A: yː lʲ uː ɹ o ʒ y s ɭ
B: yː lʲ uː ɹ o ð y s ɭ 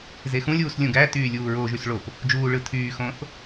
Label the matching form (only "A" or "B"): A